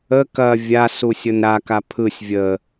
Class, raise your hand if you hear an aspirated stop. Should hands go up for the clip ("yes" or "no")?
yes